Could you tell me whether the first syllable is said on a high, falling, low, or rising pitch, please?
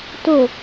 low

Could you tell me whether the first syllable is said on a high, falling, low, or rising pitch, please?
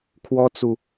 high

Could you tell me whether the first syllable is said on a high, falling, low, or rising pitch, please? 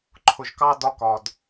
low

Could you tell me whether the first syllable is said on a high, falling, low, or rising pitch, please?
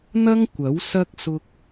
high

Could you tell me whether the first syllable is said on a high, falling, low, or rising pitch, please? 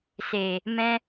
low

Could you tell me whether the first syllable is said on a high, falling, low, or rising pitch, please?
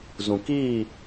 low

